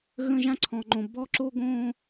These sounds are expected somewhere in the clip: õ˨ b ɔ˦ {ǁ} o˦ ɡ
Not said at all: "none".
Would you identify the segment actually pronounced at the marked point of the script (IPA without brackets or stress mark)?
ǁ